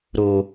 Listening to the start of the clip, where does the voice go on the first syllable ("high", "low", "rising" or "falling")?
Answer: high